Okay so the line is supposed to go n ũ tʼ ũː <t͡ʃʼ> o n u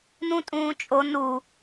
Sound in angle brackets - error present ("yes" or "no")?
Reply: no